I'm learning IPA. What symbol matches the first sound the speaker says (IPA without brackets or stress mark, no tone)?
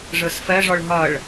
ʐ